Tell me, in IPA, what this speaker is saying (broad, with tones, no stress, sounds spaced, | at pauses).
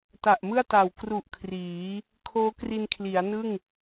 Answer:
t a˨˩ ʔ m ɯ˥˩ a̯ t a˨˩ w k r u˨˩ ʔ kʰ r iː˩˦ | kʰ oː˦˥ k r i˧ n kʰ l i˩˦ a̯ n ɯ˥˩ ŋ